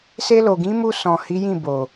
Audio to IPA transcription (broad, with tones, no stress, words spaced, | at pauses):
se˧lo˨ɡĩ˨˦mu˧ sɔ̃˨hi˨˦jĩ˦˨bo˨